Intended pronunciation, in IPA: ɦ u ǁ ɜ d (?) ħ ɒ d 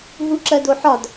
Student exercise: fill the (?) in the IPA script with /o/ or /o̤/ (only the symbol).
o